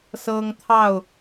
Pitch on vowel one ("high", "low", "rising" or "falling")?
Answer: high